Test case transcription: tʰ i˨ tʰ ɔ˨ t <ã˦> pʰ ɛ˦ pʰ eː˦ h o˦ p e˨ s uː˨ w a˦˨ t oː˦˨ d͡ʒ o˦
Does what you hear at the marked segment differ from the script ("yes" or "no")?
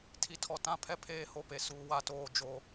no